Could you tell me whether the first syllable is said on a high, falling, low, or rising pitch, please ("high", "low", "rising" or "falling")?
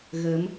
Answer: rising